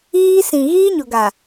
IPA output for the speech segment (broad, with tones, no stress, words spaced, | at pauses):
iː˦ sĩ˨ɣiː˦ɲʊ˨ ɡa˨